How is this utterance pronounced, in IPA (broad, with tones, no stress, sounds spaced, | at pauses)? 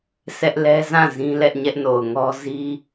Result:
s ɛ˦ ʔ l ɛ˦ z ã˦˨ z ĩ˦ l ɛ˦ ʔ ɲ ɛ˦ ʔ n o˨ ʊ̯ ŋ ɔ˦ z i˦